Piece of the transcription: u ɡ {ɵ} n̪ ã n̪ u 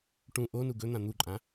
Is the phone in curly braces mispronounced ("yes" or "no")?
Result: no